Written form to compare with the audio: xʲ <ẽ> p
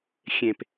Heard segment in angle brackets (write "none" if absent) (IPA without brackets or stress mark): ẽ